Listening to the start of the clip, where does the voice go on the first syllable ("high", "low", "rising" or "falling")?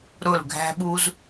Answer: falling